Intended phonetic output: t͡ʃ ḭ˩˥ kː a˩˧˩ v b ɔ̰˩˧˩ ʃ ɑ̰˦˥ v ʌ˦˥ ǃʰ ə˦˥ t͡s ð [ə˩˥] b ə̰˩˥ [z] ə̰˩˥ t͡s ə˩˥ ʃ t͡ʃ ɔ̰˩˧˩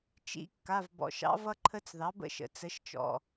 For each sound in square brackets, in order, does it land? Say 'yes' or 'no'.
no, no

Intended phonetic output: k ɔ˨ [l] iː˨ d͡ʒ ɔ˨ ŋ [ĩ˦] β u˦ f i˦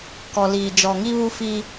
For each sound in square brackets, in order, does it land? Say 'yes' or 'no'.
yes, no

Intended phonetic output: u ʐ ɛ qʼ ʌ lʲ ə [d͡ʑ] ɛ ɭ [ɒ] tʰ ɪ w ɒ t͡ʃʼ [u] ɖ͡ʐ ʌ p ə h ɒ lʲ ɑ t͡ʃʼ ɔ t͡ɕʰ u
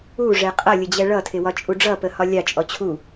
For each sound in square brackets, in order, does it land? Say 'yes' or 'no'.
yes, no, yes

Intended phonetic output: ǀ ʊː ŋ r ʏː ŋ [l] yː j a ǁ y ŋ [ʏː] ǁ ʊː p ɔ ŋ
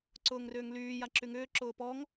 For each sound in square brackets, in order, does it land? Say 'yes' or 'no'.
yes, yes

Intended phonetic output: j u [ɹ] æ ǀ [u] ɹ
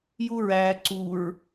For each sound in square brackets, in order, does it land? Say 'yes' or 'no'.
yes, yes

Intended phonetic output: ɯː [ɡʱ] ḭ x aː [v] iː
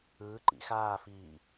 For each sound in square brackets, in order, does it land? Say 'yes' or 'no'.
no, no

